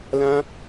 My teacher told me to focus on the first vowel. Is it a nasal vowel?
yes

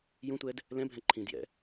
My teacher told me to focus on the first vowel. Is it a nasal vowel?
yes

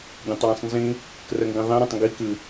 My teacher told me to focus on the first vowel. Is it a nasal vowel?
yes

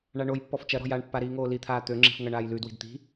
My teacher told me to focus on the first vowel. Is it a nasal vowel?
no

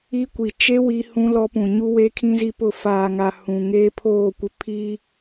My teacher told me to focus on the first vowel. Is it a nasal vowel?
no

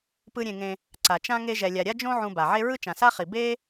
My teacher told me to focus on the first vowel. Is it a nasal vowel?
no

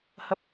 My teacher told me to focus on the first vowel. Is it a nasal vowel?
no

